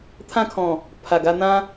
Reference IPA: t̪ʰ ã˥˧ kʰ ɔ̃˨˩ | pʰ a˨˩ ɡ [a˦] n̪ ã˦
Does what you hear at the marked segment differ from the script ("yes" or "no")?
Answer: yes